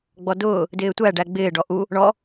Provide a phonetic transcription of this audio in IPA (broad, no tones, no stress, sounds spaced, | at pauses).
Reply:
ɡ͡b ɔ d ʊː | d ɪː tʷ æ ɖ æ ɡ͡b ɪː ɖ ɔ ʔ u | ɳ ɔ